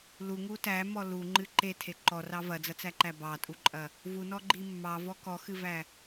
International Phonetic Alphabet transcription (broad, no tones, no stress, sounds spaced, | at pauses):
l u ŋ u t æ m ɔ l u ŋ͡ǃ ɨ ǃ e tʰ e ǃ ɔ r ɑ v ɐ d͡z ɐ t͡s æ ǃ æ b ɑ tʼ u ǃʼ ɐ | v u n ɔ ɡ͡ǃ i mː ɑ v ɔ k ɔ x ɨ v æ